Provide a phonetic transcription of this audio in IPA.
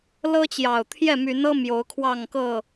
lɤ˦t͡ɕjɑ˨˩ʊ̯ t̪ʰjɛ˥˨my˨˦nɤ˦ mjo˨˦ʊ̯kʰwɑ˥˨ŋkɤ˥˨

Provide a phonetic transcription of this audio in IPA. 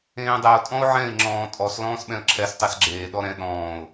ẽːdˤɛʊ̯ tʼɔ̃ʊ̯ʕɛ̃ɪ̯ ŋ͡ǁɔ̃ːtʼɔs lɔ̃ːsɓɛ̃ə̯ǁʰɛs tˤɛsɡ͡ǁeː ɗɔɾɛ̃ ɗɔ̃ːʊ̯

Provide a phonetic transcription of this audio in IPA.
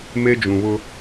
me˦d͡ʒũ˨βʊ˦

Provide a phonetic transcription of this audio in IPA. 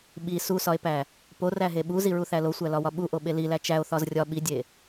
ɓi susɒe̯pæ | poræɦe ɓuziɹuθæ losʷælɒwɒ ɓuʔoɓe lilæ t͡ʃæo̯θɒz rʲɒ ɓidʲe

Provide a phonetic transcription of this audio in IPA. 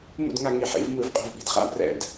mṵ˥˨dŋa˥˨ŋi˧˩˧ ħḭ˩˧vmɯ˧˩˧v qʼo̤˥˨vɓi̤˨˩d χa̰˦˥brɛ̰˧˩˧d

